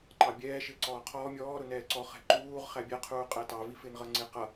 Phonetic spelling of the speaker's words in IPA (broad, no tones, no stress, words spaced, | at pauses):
ǃɑbʲɛː ʃɪːǀɔːqʰɔː mʲɔːɾʊ nɛːǀɔ χɛ̤ǃuːʁ χæbʲɛqʰuː qʼætɑvifɪːn ʁʌŋ͡ǀɪːqʌ